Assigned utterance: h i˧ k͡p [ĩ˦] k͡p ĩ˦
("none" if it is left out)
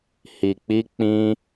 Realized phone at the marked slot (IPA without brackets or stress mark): i˦